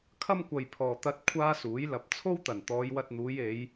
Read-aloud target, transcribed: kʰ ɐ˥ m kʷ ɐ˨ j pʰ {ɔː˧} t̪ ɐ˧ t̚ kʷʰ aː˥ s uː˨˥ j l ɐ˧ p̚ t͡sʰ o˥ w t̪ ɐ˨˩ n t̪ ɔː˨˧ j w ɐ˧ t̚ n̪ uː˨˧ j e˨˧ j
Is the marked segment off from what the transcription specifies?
yes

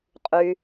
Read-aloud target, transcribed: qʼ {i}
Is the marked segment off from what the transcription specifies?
yes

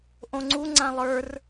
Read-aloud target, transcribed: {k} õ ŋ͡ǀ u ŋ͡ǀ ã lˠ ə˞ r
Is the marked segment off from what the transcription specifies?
yes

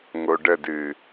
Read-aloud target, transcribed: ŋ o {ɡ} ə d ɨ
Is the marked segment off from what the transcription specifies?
yes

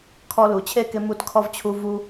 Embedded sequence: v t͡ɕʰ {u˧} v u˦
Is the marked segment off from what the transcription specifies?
no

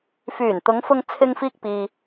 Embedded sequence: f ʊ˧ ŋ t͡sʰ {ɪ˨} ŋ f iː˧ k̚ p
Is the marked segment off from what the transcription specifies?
yes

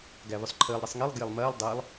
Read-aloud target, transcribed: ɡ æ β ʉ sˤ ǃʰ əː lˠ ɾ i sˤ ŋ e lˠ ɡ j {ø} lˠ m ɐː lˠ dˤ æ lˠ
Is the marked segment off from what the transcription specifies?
yes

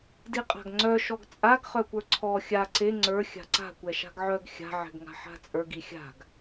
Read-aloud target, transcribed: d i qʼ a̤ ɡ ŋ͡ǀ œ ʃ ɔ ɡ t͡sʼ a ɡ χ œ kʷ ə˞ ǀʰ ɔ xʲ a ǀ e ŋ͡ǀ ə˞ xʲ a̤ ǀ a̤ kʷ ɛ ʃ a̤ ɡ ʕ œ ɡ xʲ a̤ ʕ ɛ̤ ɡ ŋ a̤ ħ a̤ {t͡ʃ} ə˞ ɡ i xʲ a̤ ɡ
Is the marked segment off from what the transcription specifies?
yes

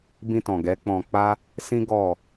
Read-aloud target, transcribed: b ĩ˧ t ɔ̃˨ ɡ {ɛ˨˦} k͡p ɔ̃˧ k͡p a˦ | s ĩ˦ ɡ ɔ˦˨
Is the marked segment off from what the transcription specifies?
no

